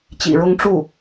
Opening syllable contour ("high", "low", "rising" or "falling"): low